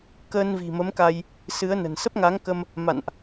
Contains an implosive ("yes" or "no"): no